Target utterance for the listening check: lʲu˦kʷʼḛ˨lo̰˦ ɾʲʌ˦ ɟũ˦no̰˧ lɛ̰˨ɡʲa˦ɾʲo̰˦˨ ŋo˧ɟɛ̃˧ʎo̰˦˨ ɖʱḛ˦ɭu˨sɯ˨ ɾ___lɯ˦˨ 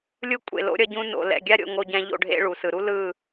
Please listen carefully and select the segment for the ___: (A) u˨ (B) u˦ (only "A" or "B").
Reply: B